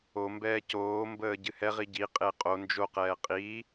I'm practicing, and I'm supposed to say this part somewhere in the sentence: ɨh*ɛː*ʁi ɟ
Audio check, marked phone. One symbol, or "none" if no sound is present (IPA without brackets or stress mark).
ɛ